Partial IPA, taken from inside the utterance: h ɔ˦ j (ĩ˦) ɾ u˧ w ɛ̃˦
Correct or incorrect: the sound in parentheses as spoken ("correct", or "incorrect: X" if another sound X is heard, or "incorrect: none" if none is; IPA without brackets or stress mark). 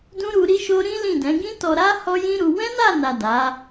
correct